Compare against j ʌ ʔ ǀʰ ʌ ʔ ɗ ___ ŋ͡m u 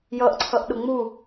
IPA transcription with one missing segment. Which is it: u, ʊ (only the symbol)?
ʊ